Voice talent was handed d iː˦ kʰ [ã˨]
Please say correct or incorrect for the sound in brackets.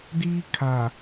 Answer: incorrect